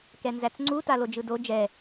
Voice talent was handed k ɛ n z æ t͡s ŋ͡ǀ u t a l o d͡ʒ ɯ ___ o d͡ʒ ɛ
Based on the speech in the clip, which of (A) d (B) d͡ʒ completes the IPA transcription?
A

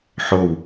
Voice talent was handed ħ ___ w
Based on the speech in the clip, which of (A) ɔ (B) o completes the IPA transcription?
B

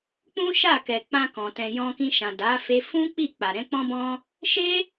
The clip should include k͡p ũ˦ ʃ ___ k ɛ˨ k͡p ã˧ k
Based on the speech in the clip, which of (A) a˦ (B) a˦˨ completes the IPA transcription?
B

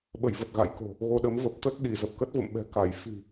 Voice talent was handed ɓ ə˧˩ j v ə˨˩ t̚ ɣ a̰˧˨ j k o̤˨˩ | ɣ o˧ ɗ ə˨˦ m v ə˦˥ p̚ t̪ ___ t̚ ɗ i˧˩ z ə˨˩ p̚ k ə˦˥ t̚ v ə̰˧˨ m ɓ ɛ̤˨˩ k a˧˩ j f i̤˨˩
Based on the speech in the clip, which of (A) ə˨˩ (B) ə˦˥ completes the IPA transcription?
B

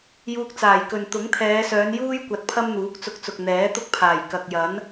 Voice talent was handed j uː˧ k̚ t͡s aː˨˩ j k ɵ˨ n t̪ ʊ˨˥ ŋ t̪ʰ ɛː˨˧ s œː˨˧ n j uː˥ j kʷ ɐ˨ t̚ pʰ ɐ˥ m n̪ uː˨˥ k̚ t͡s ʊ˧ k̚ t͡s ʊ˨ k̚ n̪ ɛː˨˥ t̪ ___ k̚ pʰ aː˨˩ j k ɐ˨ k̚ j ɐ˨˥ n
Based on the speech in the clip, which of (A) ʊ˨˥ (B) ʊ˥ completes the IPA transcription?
B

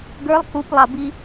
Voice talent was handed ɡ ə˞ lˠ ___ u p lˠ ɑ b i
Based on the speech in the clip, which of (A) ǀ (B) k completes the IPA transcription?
B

